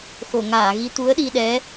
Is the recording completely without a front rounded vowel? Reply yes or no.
yes